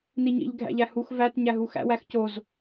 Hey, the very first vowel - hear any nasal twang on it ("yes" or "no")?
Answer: no